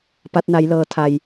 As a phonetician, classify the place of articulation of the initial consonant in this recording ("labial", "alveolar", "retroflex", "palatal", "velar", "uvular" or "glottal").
labial